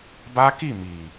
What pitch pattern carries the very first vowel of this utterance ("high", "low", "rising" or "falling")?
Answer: high